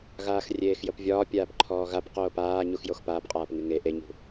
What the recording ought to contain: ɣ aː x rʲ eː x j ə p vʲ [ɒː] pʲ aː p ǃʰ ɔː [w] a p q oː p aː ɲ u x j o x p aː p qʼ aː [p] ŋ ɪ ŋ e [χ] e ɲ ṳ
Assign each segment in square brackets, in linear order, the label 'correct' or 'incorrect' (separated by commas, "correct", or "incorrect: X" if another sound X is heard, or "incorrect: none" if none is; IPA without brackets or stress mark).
correct, incorrect: ɣ, correct, incorrect: ʔ